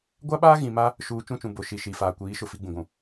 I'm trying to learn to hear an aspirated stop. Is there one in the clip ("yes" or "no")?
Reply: no